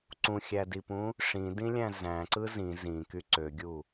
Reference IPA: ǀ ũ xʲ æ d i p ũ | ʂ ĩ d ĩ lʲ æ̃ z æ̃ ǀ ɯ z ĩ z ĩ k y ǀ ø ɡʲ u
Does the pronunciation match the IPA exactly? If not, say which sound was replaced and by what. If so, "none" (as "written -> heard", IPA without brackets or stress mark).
none